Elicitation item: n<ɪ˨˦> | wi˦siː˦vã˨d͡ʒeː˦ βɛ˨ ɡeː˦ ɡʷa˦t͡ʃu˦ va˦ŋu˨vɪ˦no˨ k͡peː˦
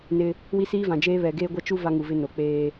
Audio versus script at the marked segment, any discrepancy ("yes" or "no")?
yes